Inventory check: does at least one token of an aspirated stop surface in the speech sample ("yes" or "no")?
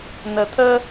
yes